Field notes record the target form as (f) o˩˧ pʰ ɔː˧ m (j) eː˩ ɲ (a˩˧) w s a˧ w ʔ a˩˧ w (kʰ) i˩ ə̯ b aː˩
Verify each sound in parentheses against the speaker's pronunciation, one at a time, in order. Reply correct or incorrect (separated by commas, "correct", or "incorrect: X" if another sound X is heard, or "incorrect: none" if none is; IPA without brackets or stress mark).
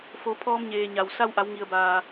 correct, incorrect: ɲ, incorrect: a˩, incorrect: ŋ